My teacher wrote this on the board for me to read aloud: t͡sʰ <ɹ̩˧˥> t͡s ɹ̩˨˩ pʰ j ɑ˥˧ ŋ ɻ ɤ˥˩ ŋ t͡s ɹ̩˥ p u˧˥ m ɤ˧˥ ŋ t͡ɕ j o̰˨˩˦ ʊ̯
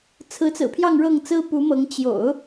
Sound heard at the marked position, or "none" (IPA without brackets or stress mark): ɹ̩˧˥